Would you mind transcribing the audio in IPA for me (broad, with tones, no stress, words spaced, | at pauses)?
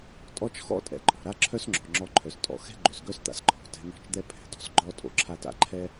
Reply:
tʼɔ˦t͡ʃ xɔ̰˦tʼɛ̰˨ ǃʼɔ̤˨ɾa˦ǁʰœ˦sŋ͡ǁɔ̤˨ ŋ͡ǁɔ˧ǃʰœ˨stʼɔ̰˧ xɛ̤˦ɡ͡ǃø˨sɡœ˦st̪a̰˧s ǃʰɔ̤˨ tɛ̤˧n̪ɔ̤˦˨t͡ʃd̪ɛ˦ pʰɛ̤˨dɔ̤˧sɡ͡ǃɔ˦ tʼo̰˧ǁʰa˦ta̰˦ ǃʰɛ˦